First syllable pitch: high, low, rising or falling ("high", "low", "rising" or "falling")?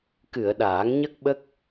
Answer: low